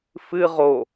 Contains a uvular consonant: yes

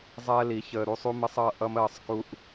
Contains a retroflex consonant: no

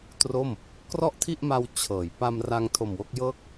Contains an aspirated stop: yes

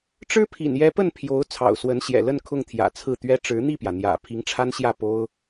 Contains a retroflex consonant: yes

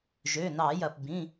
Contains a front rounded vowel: yes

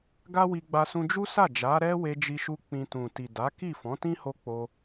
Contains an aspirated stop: no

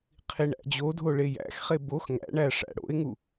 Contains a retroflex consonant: yes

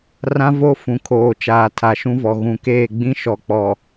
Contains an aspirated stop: yes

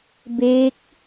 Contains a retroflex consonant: no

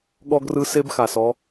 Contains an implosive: yes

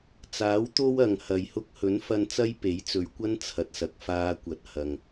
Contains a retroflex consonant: no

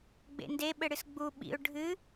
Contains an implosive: yes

